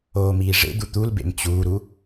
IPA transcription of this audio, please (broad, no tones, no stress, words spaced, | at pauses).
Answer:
oːmiːʐḛd̪u t̪ulbḛm t͡ɕuːɾu